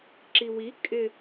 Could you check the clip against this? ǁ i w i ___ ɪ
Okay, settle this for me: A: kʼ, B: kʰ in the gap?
A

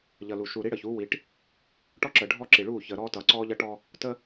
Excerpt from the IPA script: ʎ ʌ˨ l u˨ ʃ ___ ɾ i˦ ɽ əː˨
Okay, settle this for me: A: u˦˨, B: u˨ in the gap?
B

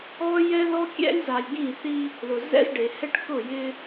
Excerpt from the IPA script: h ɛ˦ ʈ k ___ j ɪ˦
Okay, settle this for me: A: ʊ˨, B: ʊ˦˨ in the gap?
B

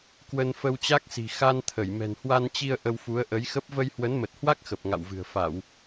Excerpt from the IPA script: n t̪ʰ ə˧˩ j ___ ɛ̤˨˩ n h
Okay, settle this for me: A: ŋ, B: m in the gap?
B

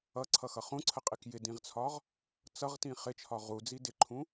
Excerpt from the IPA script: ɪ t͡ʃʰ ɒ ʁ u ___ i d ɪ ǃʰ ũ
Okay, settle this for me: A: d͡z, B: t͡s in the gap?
A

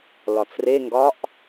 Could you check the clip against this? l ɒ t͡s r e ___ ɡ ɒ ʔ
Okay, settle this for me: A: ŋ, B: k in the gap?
A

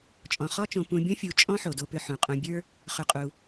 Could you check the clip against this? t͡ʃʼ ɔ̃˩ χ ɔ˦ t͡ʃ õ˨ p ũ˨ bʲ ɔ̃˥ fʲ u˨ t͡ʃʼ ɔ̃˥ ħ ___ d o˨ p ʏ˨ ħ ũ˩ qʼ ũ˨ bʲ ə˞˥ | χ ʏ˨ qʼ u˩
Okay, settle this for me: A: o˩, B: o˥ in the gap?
A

